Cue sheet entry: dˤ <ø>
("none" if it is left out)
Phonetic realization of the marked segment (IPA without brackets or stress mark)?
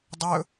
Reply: ɵ